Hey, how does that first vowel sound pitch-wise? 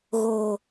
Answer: low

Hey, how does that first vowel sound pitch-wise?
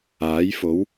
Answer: rising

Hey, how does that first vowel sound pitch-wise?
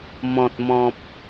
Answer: low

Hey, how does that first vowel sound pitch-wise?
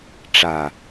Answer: low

